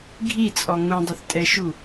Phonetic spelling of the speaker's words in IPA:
ɡʱ i t͡sʼ ɔ ŋ ũ dˤ ɘ θ tʼ ɛ ʃ u

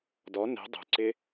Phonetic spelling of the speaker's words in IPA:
d ɔ n e̤ dˤ ṳ ǀ ɪ

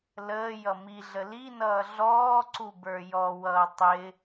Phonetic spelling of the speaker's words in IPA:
l əː j ʌ m i ɮ ə l i n ʌː ɮ ɔː ǀ u b ə˞ j ɔ w ʌː tˤ ɪ

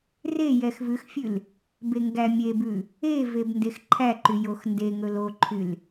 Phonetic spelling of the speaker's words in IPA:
r e j ɛ x v ʉ x fʲ ʉ l | b e ŋ ɡ æ mʲ e b ʉ | e v e b n d e x ǃʰ æ ǃ y j o x n d e ŋ ɵ l o ǃʰ y l

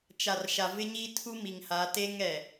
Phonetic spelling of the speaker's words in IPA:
t͡ʃ a˨ r ʃ a˨ v ɪ˦ ɲ i˦ tʰ u˦ m i˨ ŋ h a˨˦ t e˦ ŋ ɛ˨

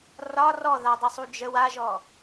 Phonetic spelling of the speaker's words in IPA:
r ɒ r ɔ ð a dˤ ə sˤ u d͡ʒ ə w a ʒ ɔ

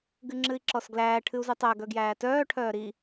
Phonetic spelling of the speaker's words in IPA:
ɡ ɨ ŋ͡ǁ ɨ i̯ ǁ ɔ s ɡ l æː ʈʰ ɨ u̯ z ɨ tˤ æ ɡ œ ɡ j æː t œː ʈʰ œː ɾ i

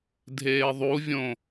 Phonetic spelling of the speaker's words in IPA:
dʱ eː ðˤ u vʲ õ

